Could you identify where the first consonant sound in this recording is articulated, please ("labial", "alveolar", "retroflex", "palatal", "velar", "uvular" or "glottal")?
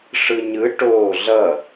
retroflex